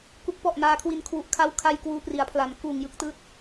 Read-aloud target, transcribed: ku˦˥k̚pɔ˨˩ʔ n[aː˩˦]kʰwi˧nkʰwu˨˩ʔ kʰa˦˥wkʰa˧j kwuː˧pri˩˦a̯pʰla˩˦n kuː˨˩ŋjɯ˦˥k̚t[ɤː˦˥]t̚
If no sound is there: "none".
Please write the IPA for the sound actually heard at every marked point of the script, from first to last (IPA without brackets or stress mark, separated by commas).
aː˧, ɯː˦˥